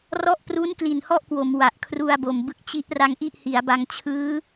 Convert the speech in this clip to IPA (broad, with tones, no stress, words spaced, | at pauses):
rɔ˦˥ʔpru˦˥nkli˨˩n hɔ˥˩ʔkwo˩˦mwa˨˩ʔ kʰru˧a̯bo˨˩m bɯ˦˥k̚t͡ɕi˦˥ʔra˧ŋ ʔi˥˩ʔhi˩˦a̯ba˧ŋ t͡ɕʰɯː˦˥